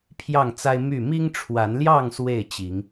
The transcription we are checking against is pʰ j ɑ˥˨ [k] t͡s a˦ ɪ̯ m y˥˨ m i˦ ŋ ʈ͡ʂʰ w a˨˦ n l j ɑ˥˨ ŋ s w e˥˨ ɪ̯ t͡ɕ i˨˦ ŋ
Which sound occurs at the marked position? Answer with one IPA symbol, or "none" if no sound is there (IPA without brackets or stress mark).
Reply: ŋ